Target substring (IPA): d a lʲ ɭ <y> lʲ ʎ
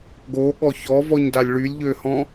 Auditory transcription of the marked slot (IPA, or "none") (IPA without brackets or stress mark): y